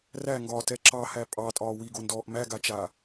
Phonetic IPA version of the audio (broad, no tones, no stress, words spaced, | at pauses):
ræŋɡɒːtɛ ǁɑhæ pʼɑtʼɒː wiɡondɔːʔ mæɡat͡ʃaː